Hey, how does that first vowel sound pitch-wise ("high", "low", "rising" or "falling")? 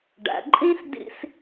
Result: low